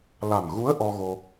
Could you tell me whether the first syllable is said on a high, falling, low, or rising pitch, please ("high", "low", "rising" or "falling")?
low